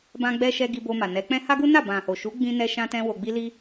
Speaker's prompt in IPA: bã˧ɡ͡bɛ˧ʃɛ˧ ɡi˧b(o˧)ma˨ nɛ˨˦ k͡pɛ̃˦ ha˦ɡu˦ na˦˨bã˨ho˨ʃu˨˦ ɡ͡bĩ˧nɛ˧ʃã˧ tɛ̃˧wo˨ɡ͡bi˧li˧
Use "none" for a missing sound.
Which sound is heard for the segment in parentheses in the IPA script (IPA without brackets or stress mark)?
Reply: o˧